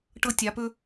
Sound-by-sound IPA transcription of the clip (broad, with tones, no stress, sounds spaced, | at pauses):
ʈ ɤ˧ tʲ a˨ p ɵ˧